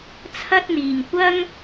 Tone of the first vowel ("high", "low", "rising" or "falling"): high